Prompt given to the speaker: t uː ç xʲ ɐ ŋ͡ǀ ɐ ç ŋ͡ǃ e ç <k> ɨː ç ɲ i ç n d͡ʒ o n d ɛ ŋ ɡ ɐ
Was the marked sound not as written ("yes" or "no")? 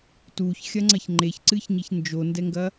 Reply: yes